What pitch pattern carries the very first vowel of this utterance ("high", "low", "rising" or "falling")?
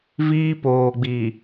high